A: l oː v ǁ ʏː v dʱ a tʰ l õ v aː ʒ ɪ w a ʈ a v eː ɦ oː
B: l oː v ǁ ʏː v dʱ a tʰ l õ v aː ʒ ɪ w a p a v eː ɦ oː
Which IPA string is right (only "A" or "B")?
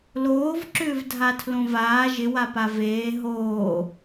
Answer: B